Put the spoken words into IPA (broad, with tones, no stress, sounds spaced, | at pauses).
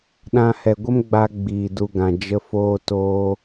ɗ ã˧ h ɛ˨ ɡʷ ə˦ m ɡ͡b a˧ ɡ͡b iː˨ d u˧ ɡ ã˨ d͡ʒ ə˧ f oː˧ t oː˧